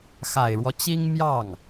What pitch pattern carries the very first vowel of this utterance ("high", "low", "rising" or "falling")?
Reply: low